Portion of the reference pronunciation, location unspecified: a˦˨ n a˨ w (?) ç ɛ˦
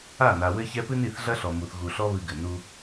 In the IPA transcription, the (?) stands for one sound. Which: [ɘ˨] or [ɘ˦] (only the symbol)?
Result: ɘ˦